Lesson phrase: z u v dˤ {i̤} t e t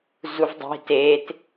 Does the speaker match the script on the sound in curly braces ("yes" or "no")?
yes